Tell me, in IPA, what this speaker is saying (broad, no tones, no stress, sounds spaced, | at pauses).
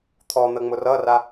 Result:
t̪ʰ ɔ n̪ ə ŋ͡m ʊ r ʌ r a